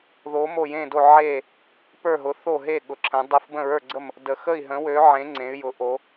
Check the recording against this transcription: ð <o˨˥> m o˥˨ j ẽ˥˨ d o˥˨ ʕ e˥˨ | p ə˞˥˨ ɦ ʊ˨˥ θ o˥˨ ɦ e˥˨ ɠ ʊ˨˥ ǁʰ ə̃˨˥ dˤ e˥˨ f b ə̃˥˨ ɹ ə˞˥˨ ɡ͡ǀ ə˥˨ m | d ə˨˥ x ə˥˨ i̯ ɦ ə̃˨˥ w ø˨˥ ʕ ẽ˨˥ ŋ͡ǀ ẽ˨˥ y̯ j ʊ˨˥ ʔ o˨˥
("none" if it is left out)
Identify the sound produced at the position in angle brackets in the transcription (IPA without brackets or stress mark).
o˨˥